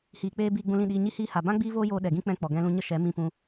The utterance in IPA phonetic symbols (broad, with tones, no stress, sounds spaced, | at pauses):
h iː˨ k͡p eː˧ b iː˧ ɡ͡b ũ˧ l ĩ˦˨ ɗ iː˧ ɲ i˧ h iː˧ h a˨ b ã˦ ɡ͡b iː˦ v oː˦ j oː˧ ɗ ɛ˨ ɡ ĩ˦ k͡p ɛ̃˧ k͡p ɔ˨ ɡ ɛ̃˦ l ũ˦ ɲ ə˦ ʃ ɛ˨˦ m ĩ˦ p ũ˦